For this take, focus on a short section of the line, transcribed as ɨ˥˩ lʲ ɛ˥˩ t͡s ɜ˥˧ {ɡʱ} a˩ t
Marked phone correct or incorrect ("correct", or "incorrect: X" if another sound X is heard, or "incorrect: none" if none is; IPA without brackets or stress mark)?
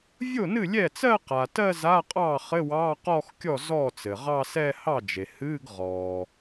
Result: incorrect: q